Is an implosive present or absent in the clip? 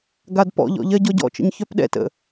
present